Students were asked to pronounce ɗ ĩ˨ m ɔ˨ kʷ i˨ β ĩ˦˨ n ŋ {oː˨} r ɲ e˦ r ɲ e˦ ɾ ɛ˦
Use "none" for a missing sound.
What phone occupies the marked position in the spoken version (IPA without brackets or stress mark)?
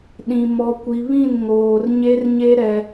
oː˨